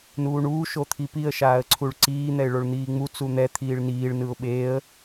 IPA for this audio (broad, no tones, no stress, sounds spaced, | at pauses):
n uː ɳ uː ʃ o t̪ʰ i p i ə̯ ʃ aː ə̯ ǀʰ u ɭ ǀ iː n̪ ɛ ɪ̯ ɭ o ɭ n̪ iː ŋ͡m u t͡s u n̪ ɛ t̪ʰ iː ɭ n iː ɭ n ɯ ʊ̯ ɓ eː ə̯